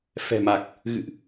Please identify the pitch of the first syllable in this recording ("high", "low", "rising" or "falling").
low